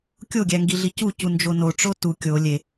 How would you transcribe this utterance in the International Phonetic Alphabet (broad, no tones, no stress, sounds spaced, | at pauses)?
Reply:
kʲ o ɡʲ æ ŋ ɡ i ɮ i c u c u n d͡ʒ o n o ʈ͡ʂ o t u kʲ o lʲ e